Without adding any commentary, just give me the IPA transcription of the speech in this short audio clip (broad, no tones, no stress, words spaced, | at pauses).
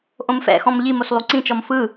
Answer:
ʔõmfɛ̰xɔ̃m ʎimos lˠuǀĩt͡ʃɔm fɯ